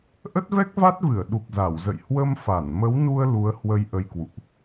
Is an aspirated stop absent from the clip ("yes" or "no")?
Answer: yes